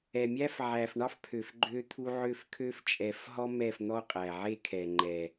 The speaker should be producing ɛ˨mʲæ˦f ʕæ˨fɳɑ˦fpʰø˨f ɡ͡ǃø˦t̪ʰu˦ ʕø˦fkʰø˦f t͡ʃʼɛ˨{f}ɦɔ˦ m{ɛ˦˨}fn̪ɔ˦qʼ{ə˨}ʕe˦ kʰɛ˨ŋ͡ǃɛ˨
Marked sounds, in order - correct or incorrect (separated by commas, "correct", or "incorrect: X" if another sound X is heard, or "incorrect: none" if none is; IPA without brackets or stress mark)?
correct, correct, incorrect: æ˨